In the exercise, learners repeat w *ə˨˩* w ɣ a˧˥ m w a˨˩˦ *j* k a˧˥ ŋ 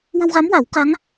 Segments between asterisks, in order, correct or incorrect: incorrect: ə˧, incorrect: w

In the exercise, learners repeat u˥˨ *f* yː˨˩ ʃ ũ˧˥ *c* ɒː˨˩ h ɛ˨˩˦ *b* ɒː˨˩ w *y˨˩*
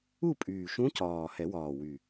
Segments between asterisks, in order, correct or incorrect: incorrect: pʼ, correct, incorrect: w, correct

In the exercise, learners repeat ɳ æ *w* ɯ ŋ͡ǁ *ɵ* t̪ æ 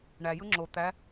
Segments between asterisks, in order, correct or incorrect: incorrect: j, incorrect: o

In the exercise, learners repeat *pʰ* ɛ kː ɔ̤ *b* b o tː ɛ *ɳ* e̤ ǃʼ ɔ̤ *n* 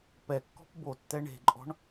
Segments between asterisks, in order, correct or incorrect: incorrect: p, incorrect: p, correct, incorrect: ɳ

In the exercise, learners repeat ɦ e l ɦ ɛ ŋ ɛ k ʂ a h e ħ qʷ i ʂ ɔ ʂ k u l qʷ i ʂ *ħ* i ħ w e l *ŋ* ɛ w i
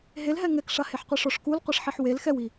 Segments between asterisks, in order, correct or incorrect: correct, incorrect: x

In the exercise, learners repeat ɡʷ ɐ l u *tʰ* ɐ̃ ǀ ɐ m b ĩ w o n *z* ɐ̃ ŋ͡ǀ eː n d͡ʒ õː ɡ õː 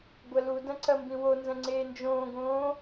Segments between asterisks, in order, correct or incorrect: incorrect: d, correct

